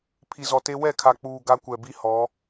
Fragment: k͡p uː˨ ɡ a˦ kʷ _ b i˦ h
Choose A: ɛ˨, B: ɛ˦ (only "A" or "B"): A